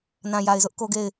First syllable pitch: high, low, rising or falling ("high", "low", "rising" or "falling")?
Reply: low